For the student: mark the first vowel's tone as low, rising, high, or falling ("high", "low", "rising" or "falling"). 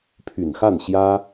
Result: low